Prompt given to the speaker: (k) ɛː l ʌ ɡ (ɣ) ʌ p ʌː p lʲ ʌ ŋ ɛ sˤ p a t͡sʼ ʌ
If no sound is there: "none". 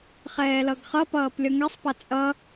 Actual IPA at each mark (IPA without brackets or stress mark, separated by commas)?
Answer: χ, χ